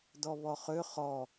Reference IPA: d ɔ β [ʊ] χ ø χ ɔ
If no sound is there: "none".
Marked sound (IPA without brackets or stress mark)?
ɔ